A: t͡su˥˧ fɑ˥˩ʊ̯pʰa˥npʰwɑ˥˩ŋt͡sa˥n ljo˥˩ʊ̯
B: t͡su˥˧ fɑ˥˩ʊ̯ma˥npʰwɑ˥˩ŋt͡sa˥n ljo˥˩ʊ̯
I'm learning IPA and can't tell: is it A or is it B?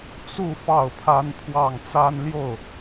A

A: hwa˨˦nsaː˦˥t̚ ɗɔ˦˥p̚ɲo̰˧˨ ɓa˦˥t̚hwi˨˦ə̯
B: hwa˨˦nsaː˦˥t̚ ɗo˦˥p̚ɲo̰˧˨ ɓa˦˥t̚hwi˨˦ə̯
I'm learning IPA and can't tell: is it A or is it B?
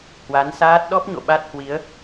A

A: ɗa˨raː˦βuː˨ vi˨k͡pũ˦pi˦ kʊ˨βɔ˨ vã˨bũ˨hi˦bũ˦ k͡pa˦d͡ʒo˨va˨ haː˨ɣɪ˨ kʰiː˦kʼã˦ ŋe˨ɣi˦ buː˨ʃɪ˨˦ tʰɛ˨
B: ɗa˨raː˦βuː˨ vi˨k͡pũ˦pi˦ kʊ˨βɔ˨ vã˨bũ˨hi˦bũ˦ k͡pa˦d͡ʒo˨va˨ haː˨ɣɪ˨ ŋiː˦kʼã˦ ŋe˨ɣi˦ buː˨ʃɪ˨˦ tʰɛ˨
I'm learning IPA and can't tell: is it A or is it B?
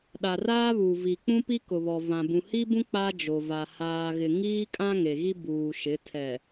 B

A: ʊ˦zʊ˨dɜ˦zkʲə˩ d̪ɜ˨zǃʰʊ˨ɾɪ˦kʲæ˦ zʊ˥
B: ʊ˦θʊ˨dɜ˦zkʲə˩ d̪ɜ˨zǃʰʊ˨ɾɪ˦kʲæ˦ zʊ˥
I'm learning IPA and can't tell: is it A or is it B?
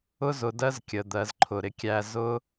A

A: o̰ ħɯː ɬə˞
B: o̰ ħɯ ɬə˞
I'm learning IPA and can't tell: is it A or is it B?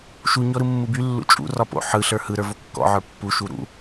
B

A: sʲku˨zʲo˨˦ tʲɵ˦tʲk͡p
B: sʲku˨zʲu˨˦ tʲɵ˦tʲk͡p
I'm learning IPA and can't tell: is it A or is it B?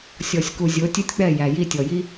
A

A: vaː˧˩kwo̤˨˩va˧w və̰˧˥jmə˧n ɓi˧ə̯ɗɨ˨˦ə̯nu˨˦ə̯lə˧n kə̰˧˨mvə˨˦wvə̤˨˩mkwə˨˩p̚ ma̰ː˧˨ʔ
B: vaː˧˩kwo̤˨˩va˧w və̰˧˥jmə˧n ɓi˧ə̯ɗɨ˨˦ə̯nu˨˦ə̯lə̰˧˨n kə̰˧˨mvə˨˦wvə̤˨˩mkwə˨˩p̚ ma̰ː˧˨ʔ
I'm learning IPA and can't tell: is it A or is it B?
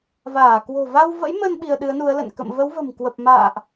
B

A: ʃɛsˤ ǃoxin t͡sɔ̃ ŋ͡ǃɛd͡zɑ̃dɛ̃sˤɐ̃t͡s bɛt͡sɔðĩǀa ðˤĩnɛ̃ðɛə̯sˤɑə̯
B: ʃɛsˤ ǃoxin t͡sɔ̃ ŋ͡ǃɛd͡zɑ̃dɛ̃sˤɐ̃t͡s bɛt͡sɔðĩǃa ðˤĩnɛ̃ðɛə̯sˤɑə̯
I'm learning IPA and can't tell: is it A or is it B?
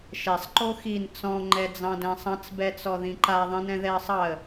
B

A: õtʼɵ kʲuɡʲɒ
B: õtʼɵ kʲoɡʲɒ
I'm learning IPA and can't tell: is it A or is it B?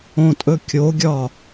B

